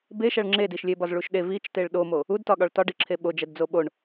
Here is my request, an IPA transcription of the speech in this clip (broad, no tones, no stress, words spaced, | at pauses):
beʃæɭ ŋ͡ǁed iʃlʲebɒz ɭuʃɗe vit͡ʃteɭ ɗomo | udtɒɠɒɭ tɒɖiǁʰe ɓod͡ʒædd͡zo ɓoɳ